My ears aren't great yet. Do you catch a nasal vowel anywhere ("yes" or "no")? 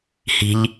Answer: no